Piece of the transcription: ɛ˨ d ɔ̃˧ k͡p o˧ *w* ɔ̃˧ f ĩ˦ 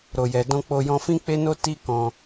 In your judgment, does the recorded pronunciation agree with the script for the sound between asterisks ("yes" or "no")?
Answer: no